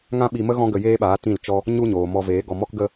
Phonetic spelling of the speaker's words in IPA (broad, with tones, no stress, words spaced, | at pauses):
ŋã˦ɓi˧mə˦ ɣɔ̃˦ɡə˧jeː˦ɓaː˨˦ tĩ˦˨lt͡ʃɔ˦ | ɲu˦ɲoː˨ mɔ˧veː˨˦ɡɔ˧ mɔ˦kɡə˦